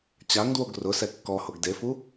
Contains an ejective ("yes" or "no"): no